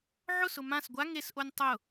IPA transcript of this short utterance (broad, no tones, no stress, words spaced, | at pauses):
ʕʊsʊ mãs ɡʷa ŋesʔonʲ tˤʊ